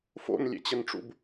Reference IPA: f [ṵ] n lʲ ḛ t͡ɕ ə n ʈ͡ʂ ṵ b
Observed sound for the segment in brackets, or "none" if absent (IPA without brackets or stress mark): o̰